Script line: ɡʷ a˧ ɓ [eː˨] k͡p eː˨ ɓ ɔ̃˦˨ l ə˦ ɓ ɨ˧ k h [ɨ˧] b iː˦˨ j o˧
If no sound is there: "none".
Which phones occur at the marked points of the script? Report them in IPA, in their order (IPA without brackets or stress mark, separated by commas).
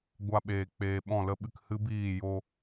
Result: eː˨, ɨ˦